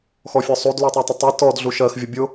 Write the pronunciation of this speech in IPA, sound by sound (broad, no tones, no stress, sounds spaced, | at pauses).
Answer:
x ɔ fʲ ɔ sˤ u d l u tˤ ɜ tˤ ə tˤ i t ɔ d ɮ u ʃ ɜ x vʲ ʌ bʲ ʊ